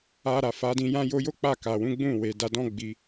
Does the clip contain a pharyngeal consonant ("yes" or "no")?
no